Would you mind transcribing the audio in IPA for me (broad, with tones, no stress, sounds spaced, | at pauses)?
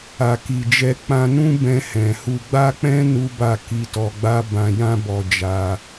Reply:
a˨ k i˨ d͡ʒ ɛ˧ k͡p ã˧ n ũ˦ b ɛ̃˧ h ɛ̃˨ h u˧ ɡ͡b a˦ k͡p ɛ̃˦ n u˦ b a˦˨ k i˧ t ɔ˧ ɡ͡b a˦ b ã˧ j ã˦ b ɔ˧ d͡ʒ a˧